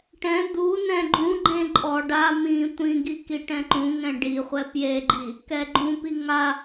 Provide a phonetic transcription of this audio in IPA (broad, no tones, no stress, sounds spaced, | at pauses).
ʈ ɛ̃ d̪ u n ɛ̃ ɡ͡ǃ ũ ɡ͡ǃ ẽ ǃʼ ɔ ɖ a m ĩ tʷ ĩ ɡ i k i ʈ ɛ̃ ǃ ũ ŋ ɛ̃ ɖ i χʷ ɛ p j e ɡ͡ǃ i | k ɛ ɡ͡ǃ ũ p i ŋ a